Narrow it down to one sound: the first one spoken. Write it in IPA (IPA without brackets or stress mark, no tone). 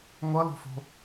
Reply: ŋʷ